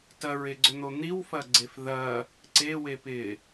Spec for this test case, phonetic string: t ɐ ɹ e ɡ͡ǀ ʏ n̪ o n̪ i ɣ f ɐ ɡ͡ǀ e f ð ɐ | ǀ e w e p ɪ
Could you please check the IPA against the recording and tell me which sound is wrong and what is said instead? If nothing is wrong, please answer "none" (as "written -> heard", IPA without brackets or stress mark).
ɣ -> w